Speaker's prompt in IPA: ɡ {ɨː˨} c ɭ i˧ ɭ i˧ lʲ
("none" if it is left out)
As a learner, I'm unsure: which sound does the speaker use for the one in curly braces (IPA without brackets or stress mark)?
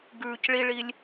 ʉː˨